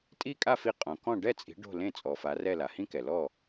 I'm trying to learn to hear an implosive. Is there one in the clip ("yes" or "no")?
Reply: no